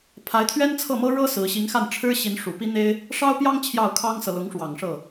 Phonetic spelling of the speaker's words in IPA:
pʰ a˧˥ ɪ̯ t̪ʰ ɥ ɛ˥ n t͡sʰ ɤ˥˩ m ɤ˥ ɻ ɤ˥ s ɹ̩˧˥ ɕ i˧˥ ŋ x a˥˩ n ʈ͡ʂʰ ɻ̩˥ ɕ i˧˥ n ʂ u˨˩ p i˥ n̪ e˥ ɪ̯ | ʂ ɑ˥ ʊ̯ p j ɑ˥ ŋ t͡ɕʰ j ɑ˥˩ ʊ̯ kʰ ɑ˥ ŋ s ɤ˨ l ʊ˧˥ ŋ ʂ w ɑ˨˩ ŋ ʂ ɤ˥˩

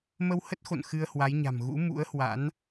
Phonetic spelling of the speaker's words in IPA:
m ə˧ w h ə˦˥ t̚ x o̰˧˨ n x ɨ˧ ə̯ h w a˨˦ j ɲ a̤˨˩ m ɣ ṵ˧˥ m ṵ˧˥ ə̯ h w a̰˧˥ n

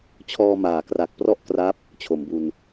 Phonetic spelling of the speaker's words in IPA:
t͡ɕʰ ɔː˧ m aː˩˦ k r a˨˩ k̚ p r ɔ˥˩ ʔ k r a˦˥ p̚ | t͡ɕʰ o˩˦ m b u˧ n

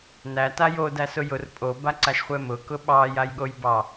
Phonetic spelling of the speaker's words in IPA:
n æ t a j o d æ s ʊ j ʊ r pʼ o b a ǀ a ʃ χʷ ɛ m ʊ k ʊ ɓ ɑ j a j ɠ o j b ɑ

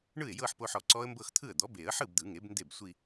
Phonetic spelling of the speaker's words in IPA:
ɳ ɯ˥˩ ɪ̯ j ɤ˥˧ ħ p o˧ ħ ɔ˨˩˦ ǀ ɔ˦˥ ə̯ m b ɤ˥˧ x t̪ʰ ɯ˥˩ ə̯ d̪ ɔ˩˥ b e˨˩˦ ə̯ ħ ɯ˥˩ b d̪ ɯ˨˩˦ ŋ e˩˥ b n d e˥˩ b sʷ i˥˧

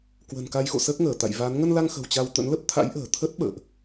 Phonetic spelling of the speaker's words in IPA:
k w ə̤˨˩ n k a˧ j x o̰˧˨ s əː˦˥ k̚ ŋ əː˧˩ t̪ a̰˧˨ j v a˨˦ n ŋ ə˧ n l a˧ ŋ x ə̤˨˩ w t͡ɕ a˧ w t̪ ə̰˧˥ n l ə˦˥ p̚ t̪ʰ a̰˧˥ j ʔ ə̤ː˨˩ t̪ʰ ə˦˥ t̚ ɓ ə̰ː˧˨ ʔ

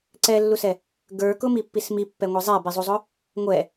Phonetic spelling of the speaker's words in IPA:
ǀ ɛ lː u s ɛ | ɡ ə˞ k ʊ m i pː i s m i pː ɛ ŋʷ ɛ zˤ ɛ b i zˤ u zˤ ʊ | ŋʷ ɛ

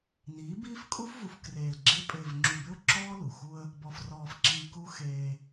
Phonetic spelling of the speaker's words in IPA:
n iː˨˦ b iː˦ f kʼ u˦ f v u˨ f k r eː˨ l ɡ͡ǁ e˦ pʼ ɪː˨ v ŋ͡ǁ u˨ b ɪ˦ ʊ̯ ǁ ɔː˦ l u˨ x u˦ ə̯ | b ɔ˨ f r ɔː˨ f ǁ iː˨ k u˦ x eː˦

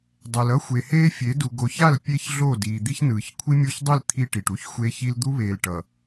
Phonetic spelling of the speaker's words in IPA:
dˤ ɛ˨ l ʌ˦ xʷ e˨ h eː˦ fʲ e˨˦ d u˨ ɡ o˨ ç a˦˨ l pʲ e˦ ç ɮ o˦˨ d iː˨ d̪ i˦ ç n ɯː˨ ç kʷʰ i˦ mʲ o˦˨ ç dˤ i˦˨ l t̪ʰ i˦ ʈ i˨ ʈ u˦ ç xʷ e˦ ç i˦ l d̪ u˦ β eː˨ l ʈ ʌ˨

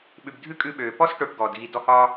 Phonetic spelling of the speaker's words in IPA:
ɓ ʉ˨ b dʱ ʉ˥ kʼ ʉ˦ ɓ øː˩ p ɔ˥ s ʈ o˨ ʈ ɡ ɔː˩ d ɣ i˨ d ɔ˦ h ɒː˥

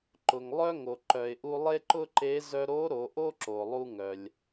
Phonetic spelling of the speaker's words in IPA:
ǃ ʊ˩ ŋ lˠ œ˥ ŋ o˩ ǃ œ˩ ɪ̯ ʔ u˧ lˠ e˥ ǃ ʊ˥ ǃ e˧˥ z œ˧ ɾ o˧˥ ɾ o˩˧ ʔ o˥ ǁ o˩ lˠ u˧ ŋ œ˩ lʲ

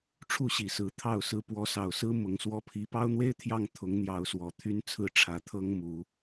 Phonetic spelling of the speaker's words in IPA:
ʈ͡ʂʰ u˥˨ ɕ i˨˩ s ɹ̩˨˦ t̪ʰ ɑ˥˨ ʊ̯ s ɹ̩˦ p w ɔ˨˦ s ɑ˨˩ ʊ̯ s ɹ̩˦ m ʊ˨˦ ŋ s w ɔ˦ pʰ i˦ p ɑ˦ ʊ̯ n̪ w e˦ ɪ̯ t̪ʰ j ɑ˥˨ ŋ t̪ʰ ʊ˨˦ ŋ n̪ j ɑ˨˦ ʊ̯ s w ɔ˨˩ t̪ʰ y˦ n t͡sʰ ɹ̩˥˨ ʈ͡ʂʰ ä˨˦ t̪ʰ ɤ˦ ŋ m u˨˦

